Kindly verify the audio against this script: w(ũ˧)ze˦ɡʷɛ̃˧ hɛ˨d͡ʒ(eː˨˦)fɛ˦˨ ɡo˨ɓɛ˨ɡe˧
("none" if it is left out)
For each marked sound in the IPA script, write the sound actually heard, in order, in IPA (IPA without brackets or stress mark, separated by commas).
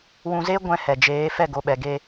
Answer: ũ˧, eː˨˦